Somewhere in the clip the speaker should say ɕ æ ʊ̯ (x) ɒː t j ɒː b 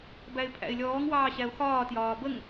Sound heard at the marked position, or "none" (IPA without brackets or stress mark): x